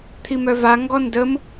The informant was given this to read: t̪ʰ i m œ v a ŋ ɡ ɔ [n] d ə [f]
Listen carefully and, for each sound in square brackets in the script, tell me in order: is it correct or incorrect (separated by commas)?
correct, incorrect